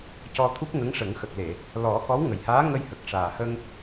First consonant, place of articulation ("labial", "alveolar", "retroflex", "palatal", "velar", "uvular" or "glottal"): palatal